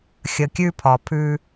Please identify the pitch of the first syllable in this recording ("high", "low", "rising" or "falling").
low